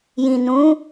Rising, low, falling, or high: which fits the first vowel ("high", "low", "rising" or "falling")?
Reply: low